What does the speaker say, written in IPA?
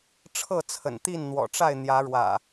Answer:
ʈ͡ʂʰ ɤ˥˨ t͡sʰ ə̰˨˩ n t̪ i˥˨ n n̪ w ɔ̰˨˩ ʈ͡ʂ a˥˨ ɪ̯ n̪ j ä˨˦ ɻ w ä̰˨˩

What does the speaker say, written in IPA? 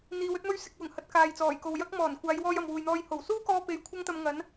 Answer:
n̪ iː˨˧ w ɵ˥ t̚ m ɵ˥ ɥ s ɪ˨ k̚ w ʊ˨˩ ŋ h ɐ˨˥ t̚ k aː˨ j t͡s ɔː˨˩ j k o˨ w j ɐ˥ k̚ m ɔː˨˩ n kʷ aː˨˧ j w ɔː˧ j ɐ˨ m w uː˨ j n̪ ɔː˧ j h o˨˩ w s uː˥ k ɔː˧ p e˨˧ j kʷʰ ɐ˥ ŋ t̪ ɐ˧ m ŋ ɐ˨˥ n

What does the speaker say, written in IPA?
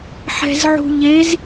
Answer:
ħ ɛ̤ z ʕ ṳ ʎ e z

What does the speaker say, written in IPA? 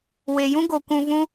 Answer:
w e˨ j ũ˦ ɡ o˨ kʷ ũ˧ v ũ˦

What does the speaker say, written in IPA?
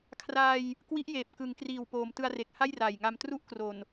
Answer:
kʰ r aː˧ j | k w i˦˥ ʔ j eː˨˩ p̚ k ɯ˩˦ ŋ k r iː˨˩ w p oː˩˦ m t ɯ˧ a̯ r e˨˩ k̚ h a˥˩ j r aː˨˩ j ŋ a˧ m t r u˥˩ ʔ k r o˨˩ n

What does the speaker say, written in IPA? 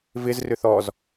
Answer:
v ɪ z r ʏ θ ɔ z

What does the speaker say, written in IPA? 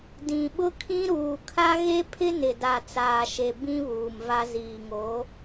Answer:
d ĩ˨ ɓ ʊ˦ kʰ ĩ˦ ɾ uː˨ kʰ a˦ ɣ e˦ pʰ ɪ˦ n ɪ˨ d a˨ t͡s aː˨ ʃ e˨ b ĩ˦ β uː˨ m v a˦ z iː˨ ŋ oː˨˦

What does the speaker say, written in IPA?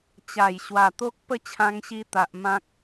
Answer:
t͡ɕ a˨˩ j ɕ w a˨˩ t̪ o˦ k̚ p ə˥˧ t͡ɕʰ ã˧ ŋ ɕ i˧ t̪ a˨ ʔ m ã˦ k̚

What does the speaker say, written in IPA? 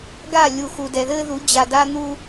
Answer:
ɡ a˦˨ lʲ u˨ x u˨ d ɛ˨ ð ɘː˦ ð u˨˦ d͡ʑ a˨ d a˦ n̪ u˦

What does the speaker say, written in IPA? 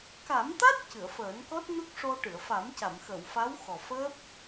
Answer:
k a˨˩˦ m t̪ a˦˥ t̚ c ɨ˨˩˨ ə̯ f əː˨˩˦ n k ɔ˦˥ t̚ n u˦˥ k̚ ʂ o˧ ʈ ɨ˨˩˨ ə̯ f a˨˩˦ m c a˨˩˨ m x ə˨˩˨ w f a˧˥ w x ɔ˨˩ f əː˦˥ p̚

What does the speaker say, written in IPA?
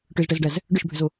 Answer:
ʈ ʏ z ʈ ɛ z ɖ æ z | ɖ ʏ ʃ bʱ ʏ z o

